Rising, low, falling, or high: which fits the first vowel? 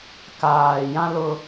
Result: low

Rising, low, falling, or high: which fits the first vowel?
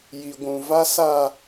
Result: high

